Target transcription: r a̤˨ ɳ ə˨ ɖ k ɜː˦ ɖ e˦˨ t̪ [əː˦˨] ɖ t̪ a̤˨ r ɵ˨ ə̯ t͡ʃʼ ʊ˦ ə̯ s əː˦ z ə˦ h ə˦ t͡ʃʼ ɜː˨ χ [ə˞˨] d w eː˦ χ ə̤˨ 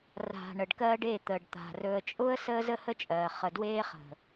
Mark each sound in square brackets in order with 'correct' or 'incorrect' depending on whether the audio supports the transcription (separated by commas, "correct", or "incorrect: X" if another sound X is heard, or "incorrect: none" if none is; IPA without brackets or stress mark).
incorrect: əː˨, incorrect: ə˨